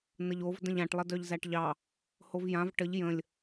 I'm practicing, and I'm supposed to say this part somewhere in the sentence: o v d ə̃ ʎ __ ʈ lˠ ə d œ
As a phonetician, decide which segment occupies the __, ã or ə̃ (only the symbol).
ã